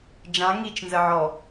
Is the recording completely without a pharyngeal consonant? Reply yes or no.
no